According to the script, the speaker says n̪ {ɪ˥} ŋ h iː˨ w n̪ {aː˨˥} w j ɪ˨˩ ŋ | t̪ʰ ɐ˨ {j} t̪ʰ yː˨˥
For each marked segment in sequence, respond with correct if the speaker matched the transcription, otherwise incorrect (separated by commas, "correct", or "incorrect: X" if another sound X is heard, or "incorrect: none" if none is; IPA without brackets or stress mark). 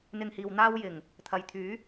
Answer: incorrect: ɪ˧, incorrect: aː˥, correct